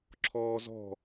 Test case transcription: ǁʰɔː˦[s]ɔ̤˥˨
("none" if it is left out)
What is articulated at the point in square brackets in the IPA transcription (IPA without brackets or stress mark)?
z